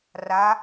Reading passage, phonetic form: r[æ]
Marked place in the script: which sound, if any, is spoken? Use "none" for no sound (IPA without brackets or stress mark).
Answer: a